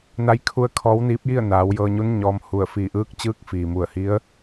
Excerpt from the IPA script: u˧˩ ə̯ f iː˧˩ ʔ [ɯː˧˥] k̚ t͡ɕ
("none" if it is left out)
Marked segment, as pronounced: ɯː˧˥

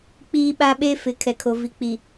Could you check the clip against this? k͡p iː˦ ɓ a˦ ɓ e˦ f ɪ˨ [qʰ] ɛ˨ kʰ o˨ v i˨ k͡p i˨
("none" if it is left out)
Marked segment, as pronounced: kʰ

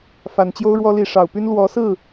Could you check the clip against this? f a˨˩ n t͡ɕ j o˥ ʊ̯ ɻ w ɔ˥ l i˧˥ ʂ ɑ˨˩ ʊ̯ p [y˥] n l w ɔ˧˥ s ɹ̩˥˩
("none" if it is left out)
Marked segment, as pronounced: y˥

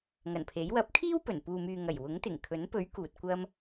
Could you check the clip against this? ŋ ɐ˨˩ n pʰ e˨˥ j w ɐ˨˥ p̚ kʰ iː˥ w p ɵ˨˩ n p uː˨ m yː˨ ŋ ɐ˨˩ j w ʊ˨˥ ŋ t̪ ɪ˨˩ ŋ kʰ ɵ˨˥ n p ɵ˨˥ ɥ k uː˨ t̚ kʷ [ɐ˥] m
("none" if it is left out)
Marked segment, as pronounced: ɐ˥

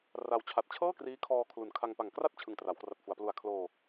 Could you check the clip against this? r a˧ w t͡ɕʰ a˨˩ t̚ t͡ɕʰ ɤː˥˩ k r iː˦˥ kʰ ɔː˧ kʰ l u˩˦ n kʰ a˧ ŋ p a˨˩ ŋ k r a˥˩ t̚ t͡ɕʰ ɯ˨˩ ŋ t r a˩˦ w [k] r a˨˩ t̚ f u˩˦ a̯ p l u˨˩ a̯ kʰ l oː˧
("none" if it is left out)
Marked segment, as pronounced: k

